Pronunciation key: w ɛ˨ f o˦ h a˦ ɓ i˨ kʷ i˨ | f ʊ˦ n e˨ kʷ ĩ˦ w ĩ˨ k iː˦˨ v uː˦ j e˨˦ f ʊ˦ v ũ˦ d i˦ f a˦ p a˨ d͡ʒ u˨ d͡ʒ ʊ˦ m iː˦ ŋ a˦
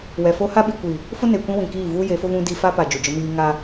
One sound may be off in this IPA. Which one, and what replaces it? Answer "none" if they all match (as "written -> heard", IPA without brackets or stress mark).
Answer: none